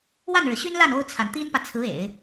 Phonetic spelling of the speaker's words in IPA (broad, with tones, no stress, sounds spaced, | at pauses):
w a˥˩ n ɻ ɻ̩˩ ɕ y˥ n l a˥˩ n o˥ ʊ̯ t͡sʰ a˨ n t̪ i˥ n p ä˨ t͡sʰ ɹ̩˧˥ ḛ˨˩˦ ɪ̯